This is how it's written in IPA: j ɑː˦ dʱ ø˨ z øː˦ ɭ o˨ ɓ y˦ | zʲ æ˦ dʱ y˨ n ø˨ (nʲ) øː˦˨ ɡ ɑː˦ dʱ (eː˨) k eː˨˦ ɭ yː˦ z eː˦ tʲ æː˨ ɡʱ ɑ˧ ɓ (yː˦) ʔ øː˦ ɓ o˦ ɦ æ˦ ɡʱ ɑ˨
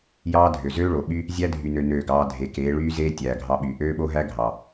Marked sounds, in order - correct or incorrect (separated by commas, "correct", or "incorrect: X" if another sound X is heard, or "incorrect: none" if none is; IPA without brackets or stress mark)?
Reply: incorrect: n, incorrect: e˨, incorrect: yː˨